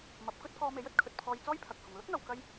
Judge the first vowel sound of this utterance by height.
low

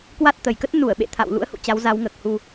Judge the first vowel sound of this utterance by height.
low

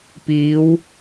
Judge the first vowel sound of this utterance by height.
high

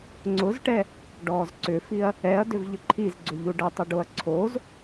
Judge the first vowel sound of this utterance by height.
high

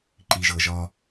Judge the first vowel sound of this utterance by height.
high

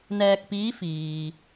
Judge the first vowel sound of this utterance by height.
mid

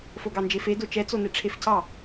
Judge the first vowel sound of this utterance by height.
mid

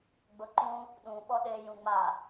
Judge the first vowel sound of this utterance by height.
high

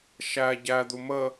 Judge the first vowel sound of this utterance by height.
low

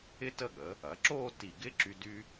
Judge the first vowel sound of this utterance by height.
high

